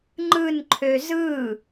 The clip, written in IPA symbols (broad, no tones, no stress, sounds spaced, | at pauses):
ŋ͡ǃ ɯ n ǃʰ ø z ɯ